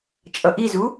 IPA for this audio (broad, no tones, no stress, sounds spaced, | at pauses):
t͡ʃʼ ʌ ʔ i z u